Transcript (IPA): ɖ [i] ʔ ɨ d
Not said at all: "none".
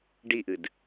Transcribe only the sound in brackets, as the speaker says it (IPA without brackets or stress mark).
i